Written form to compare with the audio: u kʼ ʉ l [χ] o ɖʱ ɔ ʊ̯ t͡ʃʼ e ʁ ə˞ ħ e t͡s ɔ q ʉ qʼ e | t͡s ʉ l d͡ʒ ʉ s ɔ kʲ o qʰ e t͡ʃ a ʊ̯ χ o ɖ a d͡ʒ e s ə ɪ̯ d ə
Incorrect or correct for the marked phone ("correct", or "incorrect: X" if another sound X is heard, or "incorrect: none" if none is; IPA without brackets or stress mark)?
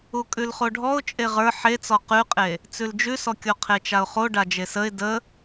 correct